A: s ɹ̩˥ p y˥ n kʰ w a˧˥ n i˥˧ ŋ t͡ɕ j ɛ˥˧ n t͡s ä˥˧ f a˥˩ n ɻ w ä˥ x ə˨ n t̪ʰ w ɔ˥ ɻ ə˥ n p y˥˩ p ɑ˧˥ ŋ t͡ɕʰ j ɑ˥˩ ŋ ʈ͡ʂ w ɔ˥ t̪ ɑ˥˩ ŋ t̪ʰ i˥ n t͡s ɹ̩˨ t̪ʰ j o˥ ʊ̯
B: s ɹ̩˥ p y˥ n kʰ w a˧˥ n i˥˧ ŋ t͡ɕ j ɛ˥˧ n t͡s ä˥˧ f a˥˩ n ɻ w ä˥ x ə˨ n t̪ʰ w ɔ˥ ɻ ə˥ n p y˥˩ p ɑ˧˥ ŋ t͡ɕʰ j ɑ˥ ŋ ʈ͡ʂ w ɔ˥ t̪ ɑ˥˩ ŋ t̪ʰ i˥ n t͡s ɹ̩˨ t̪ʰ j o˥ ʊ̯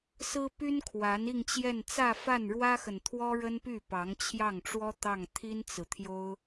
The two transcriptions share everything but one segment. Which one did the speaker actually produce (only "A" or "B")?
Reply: A